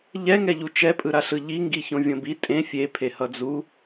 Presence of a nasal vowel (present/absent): present